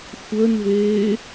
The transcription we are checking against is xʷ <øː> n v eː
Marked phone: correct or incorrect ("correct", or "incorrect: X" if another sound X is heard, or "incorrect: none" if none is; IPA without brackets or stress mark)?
incorrect: əː